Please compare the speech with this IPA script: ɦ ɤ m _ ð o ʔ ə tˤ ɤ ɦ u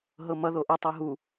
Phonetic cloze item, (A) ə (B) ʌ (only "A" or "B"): B